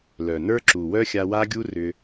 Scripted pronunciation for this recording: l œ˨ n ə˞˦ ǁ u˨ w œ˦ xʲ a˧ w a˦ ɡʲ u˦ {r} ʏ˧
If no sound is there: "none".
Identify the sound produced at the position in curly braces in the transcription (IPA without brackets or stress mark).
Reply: r